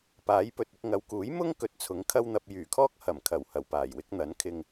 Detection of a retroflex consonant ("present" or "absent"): absent